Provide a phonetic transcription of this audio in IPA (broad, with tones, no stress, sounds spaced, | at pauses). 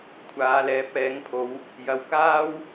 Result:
kʷʰ aː˨˧ l ɛː˨˥ p̚ ɛː˨˥ ŋ pʰ o˨˧ w | j ɐ˨˧ w k aː˥ w